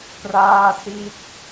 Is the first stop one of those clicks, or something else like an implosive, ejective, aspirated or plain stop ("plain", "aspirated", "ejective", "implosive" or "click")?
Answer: plain